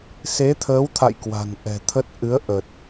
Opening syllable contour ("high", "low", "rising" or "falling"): rising